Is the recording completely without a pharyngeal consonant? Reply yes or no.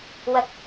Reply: yes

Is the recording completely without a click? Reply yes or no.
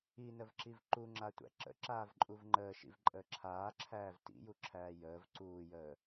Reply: no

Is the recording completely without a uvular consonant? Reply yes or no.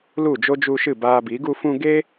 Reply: yes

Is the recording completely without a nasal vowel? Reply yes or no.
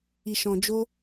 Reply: no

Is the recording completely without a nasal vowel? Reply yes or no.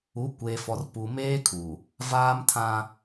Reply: no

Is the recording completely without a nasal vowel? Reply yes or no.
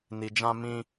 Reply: no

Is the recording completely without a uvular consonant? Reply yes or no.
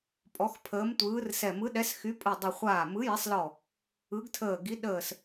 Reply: no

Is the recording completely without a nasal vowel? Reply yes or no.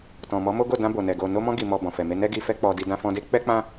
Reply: no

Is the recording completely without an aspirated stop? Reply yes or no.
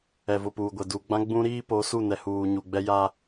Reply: yes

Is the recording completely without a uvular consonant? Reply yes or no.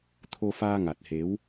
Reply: yes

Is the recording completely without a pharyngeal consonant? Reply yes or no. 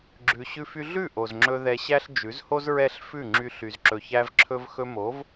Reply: yes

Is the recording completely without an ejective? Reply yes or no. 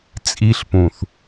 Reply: no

